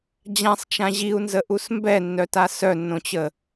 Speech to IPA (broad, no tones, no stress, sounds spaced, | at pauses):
d͡ʑ ã sˤ t͡ʃ ã ʑ i u̯ n z ə ʔ u s m b ɛ nː œ t a s œ nː õ t͡ɕ ə